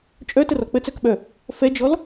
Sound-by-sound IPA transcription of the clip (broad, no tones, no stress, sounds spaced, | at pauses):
t͡ʃʼ œ t ə r ɔ k͡p ə t͡s œ k ɓ œ | f ɛ d͡ʒ ɔ l